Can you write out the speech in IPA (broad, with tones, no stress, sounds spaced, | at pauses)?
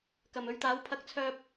k ɐ˨˩ m ɵ˨˧ ɥ t̪ aː˨˥ w pʰ ɐ˧ k̚ t͡sʰ œː˧ p̚